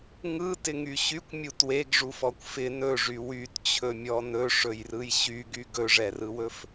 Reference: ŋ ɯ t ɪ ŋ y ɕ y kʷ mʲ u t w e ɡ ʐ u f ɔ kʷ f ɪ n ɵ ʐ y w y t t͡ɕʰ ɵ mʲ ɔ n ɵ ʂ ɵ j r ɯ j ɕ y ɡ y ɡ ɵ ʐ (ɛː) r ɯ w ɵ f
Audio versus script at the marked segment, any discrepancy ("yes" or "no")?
yes